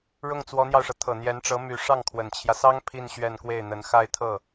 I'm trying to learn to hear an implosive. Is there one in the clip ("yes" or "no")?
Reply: no